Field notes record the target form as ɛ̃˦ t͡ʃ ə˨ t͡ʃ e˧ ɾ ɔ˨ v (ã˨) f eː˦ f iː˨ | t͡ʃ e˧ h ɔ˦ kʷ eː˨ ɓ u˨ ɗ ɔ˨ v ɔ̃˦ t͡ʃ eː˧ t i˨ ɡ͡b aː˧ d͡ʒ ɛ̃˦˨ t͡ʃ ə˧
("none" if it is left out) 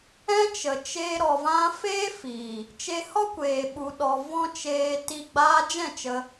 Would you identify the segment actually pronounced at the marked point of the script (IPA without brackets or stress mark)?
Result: ã˧